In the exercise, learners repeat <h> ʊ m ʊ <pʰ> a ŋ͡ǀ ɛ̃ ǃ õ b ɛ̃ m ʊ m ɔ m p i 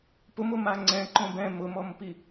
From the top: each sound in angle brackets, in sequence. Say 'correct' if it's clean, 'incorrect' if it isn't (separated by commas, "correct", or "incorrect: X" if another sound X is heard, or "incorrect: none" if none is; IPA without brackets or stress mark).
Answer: incorrect: p, incorrect: m